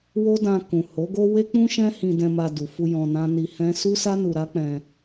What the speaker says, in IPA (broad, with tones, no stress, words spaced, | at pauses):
wo˦dã˧kũ˨ ho˨˦ɡo˦ we˦k͡pũ˦ ʃɛ̃˦ hĩ˧dɛ̃˧ma˧ du˨fu˧ jɔ̃˧nã˦ ni˧hɛ̃˦ su˦sa˦ nu˧ɾa˦k͡pɛ̃˧